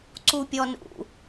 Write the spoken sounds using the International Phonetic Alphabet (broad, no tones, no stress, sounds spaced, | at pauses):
ǀ u pʲ ɔ n ṵ